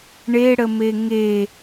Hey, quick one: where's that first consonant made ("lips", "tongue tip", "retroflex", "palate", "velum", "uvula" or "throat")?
retroflex